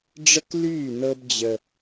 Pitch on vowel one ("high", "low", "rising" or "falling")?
high